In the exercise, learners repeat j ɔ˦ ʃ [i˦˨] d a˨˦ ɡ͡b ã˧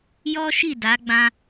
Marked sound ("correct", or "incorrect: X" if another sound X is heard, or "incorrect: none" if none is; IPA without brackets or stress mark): correct